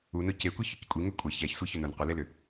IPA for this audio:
u n ʊ c e kʷ i ç ʏ c kʷʼ i ŋ ø kʷʼ ə ç ɛ ç sʷ i ç ʏ n ʊ n qʷ ə l e l ʏ

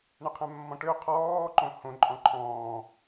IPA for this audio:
ɳ ə qʰ ɛ̃ mː ɔ̃ ʈ ø qʰ ɔː ǃ õ h õ ǃʼ ɔ̃ ǃʰ ɔ̃ː

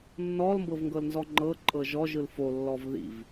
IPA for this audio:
nː ɔ l m b ɤ v ŋ ɡ ɤ l n z ɔ ŋ͡ǃ ɤ ǃʼ ɤ ʒ ɔ ʒ ɯ l f o lː ɔ v ð ḭ v

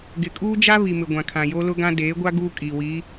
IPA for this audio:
ɡ ɪ˨ kʼ uː˦ d͡ʒ a˦ β i˨ m ɪ˨ ɡʷ ã˨ kʰ ã˨ j o˦ l ʊ˦ ɡ ã˦ d eː˨˦ ɡʷ a˦ ɡ uː˦ kʼ iː˨ w i˨˦

